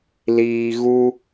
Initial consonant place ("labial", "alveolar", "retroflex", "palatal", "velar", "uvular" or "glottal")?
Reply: alveolar